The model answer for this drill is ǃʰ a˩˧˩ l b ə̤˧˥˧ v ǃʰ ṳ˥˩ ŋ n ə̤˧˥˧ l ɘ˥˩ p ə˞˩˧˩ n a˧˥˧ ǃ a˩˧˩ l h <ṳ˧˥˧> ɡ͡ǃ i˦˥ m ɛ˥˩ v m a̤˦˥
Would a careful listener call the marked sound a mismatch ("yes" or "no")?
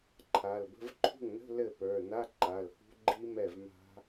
yes